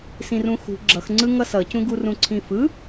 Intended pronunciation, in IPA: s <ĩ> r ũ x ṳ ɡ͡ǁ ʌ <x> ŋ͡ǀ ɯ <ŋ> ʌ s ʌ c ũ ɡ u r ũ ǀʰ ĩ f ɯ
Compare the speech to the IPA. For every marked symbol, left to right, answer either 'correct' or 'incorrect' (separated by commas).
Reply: correct, correct, correct